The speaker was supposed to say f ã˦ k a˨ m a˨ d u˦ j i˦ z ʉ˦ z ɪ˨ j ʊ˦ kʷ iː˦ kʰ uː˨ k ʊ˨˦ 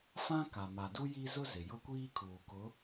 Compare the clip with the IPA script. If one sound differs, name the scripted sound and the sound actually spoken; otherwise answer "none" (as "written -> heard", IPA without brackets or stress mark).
ʉ˦ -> ʊ˦